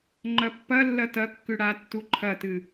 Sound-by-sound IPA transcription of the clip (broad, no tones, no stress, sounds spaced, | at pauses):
ŋ͡ǃ ɐ pː ɐ lː ɐ t ɐ kː ʉ ɽ a tː u ǃʰ ɐ t ɨ